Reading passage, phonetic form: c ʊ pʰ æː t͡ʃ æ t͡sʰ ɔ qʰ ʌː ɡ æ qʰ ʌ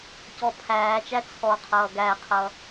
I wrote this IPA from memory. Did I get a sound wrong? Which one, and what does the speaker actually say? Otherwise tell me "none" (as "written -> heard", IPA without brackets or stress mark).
ʊ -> ɔ